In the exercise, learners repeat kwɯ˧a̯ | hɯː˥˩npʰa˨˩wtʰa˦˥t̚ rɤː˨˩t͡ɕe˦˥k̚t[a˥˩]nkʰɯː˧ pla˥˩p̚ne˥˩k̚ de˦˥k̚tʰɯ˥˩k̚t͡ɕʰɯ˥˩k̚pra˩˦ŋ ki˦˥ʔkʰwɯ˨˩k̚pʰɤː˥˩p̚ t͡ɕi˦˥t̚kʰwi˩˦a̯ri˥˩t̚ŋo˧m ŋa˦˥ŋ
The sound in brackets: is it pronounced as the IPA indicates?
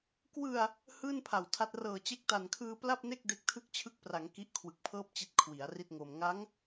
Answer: no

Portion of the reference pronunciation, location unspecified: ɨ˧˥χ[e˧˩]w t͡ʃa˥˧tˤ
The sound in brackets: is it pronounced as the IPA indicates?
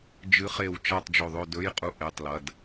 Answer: yes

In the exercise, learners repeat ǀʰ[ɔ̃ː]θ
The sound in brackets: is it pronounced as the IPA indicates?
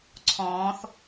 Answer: yes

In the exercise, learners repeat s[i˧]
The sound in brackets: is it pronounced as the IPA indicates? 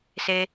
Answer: no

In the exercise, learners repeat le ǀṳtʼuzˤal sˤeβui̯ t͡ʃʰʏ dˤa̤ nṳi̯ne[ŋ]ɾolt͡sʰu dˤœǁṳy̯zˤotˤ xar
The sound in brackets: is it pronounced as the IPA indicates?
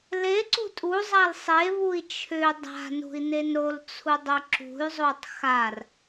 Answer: no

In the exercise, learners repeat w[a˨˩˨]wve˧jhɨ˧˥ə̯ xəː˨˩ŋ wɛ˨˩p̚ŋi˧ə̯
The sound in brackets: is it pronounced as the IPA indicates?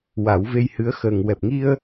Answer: no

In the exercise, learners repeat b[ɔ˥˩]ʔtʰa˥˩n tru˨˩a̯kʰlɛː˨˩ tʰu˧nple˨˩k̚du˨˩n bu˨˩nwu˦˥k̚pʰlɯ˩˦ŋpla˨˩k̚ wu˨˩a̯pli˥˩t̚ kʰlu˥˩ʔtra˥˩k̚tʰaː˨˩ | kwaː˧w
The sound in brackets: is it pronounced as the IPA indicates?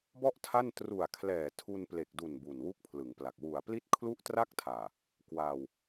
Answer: yes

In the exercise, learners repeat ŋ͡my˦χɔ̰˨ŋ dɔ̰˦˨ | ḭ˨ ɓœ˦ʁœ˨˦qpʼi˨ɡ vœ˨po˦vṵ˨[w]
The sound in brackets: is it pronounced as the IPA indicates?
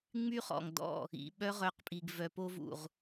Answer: no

